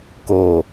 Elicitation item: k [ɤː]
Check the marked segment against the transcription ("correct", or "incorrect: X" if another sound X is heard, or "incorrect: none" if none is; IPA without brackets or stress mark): incorrect: oː